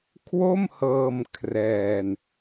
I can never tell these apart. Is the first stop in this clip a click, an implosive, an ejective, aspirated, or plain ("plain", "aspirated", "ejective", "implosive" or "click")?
aspirated